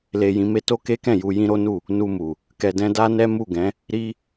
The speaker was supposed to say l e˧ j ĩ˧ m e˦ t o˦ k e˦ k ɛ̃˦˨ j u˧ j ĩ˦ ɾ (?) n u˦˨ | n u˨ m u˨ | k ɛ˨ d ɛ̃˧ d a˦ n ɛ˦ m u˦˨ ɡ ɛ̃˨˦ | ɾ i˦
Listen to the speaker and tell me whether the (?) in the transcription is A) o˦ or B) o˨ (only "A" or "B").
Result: A